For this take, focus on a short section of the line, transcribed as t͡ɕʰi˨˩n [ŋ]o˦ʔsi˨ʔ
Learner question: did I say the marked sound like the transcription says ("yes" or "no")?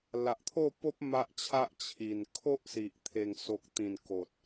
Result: no